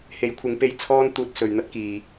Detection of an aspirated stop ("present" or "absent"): present